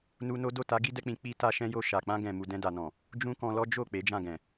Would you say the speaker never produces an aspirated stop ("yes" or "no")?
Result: yes